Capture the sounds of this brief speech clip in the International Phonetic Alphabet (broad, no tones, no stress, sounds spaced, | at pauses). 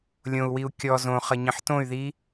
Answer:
lʲ õ u̯ w i u̯ kʲ ɔ z õ χ ʌ ɲ ə̃ ħ t õ y̯ ð i